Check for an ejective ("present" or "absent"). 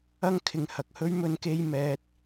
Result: absent